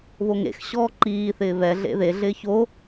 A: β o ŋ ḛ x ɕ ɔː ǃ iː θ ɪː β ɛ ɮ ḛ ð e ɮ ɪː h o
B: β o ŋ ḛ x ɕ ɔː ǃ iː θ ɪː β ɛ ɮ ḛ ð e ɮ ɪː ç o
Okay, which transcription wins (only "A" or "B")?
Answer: B